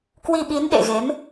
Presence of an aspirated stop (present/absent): absent